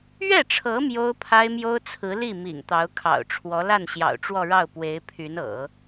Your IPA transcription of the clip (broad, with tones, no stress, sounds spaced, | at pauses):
ɥ ɛ˥˩ ʈ͡ʂʰ ɤ˧˥ m j o˥ ʊ̯ pʰ a˥ ɪ̯ m j o˥ ʊ̯ t͡sʰ ɹ̩˧˥ l i˥˩ m ḭ˨˩ ŋ t̪ ɑ˧˥ ʊ̯ kʰ ɑ̰˨˩ ʊ̯ ʈ͡ʂʰ w ɔ˧˥ l a˥˩ n ɕ j ɑ̰˨˩ ʊ̯ ʈ͡ʂ w ɔ˥˧ ɻ ɑ˥˩ ʊ̯ p w e˧˥ ɪ̯ pʰ y˧˥ n ɤ̰˨˩˦